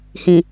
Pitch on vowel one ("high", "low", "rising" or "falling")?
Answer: low